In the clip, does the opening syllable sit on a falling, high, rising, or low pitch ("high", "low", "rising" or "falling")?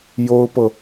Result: high